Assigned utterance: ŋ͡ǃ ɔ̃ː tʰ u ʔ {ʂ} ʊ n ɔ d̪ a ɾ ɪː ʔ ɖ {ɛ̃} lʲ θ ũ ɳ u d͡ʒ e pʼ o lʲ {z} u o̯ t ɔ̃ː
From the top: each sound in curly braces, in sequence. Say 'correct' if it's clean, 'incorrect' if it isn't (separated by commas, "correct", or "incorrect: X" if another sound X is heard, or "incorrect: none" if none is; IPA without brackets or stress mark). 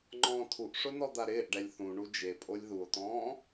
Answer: correct, incorrect: ɛ, incorrect: ð